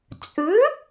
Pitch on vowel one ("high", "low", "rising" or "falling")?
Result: rising